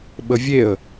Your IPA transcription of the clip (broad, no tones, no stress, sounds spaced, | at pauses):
ɓ ə vʲ e ə̯